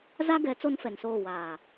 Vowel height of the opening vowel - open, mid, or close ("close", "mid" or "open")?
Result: open